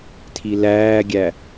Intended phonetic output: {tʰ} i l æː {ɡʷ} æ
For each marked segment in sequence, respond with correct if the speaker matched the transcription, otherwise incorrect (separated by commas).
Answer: correct, incorrect